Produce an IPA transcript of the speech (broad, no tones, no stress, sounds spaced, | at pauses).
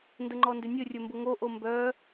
n d ə ŋ͡ǃ ɔ n d ʏ nʲ ɵ rʲ ɵ m b ʊ ŋ o ʔ o m b œ